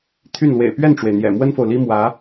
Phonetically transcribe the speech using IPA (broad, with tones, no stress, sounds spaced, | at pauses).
t̪ʰ y˥˩ n l w ḛ˨˩ ɪ̯ p ɥ ɛ˥˩ n ʈ͡ʂ w e˩ ɪ̯ n̪ j ɛ̰˨˩ m w ə˥ n f o˨ ʊ̯ l i˥ m w ä˧˥